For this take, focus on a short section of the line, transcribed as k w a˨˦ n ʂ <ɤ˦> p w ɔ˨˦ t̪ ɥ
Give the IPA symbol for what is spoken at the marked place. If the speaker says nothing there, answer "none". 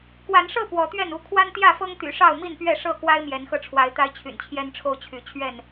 ɤ˥˨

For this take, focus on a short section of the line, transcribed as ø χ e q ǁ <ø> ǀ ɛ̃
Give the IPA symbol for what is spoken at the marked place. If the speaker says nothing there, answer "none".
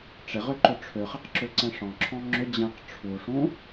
ø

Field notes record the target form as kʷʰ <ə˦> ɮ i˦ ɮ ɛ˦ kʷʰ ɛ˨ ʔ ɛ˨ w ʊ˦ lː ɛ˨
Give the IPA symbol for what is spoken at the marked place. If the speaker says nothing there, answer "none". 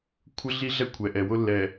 ə˦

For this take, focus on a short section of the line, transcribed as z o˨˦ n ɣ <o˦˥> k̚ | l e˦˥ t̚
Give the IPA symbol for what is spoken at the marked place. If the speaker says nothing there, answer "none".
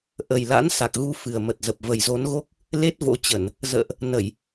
o˦˥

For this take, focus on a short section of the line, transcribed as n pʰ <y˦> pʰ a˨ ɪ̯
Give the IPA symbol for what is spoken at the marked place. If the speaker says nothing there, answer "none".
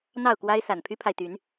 y˦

